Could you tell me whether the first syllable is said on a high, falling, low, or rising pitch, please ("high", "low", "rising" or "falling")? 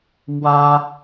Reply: high